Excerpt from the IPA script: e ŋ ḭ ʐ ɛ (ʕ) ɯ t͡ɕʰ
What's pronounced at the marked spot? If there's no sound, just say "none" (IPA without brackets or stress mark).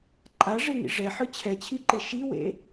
ħ